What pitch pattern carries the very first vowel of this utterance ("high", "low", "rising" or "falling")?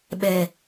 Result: low